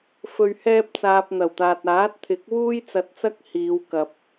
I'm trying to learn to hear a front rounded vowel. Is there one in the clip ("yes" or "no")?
no